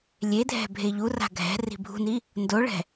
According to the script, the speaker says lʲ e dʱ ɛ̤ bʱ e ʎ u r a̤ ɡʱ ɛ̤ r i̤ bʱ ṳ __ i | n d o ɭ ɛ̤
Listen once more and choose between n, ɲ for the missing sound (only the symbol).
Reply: n